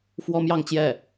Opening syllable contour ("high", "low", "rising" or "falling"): high